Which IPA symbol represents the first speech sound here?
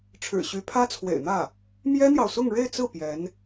ʈ͡ʂʰ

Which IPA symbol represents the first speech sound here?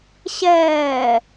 ɕ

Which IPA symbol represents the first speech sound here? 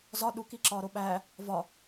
z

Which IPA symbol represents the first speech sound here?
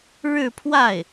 ɻ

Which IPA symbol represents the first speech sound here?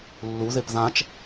lː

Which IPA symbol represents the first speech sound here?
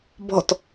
b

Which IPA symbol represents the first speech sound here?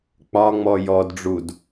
k͡p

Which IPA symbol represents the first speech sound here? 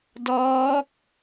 d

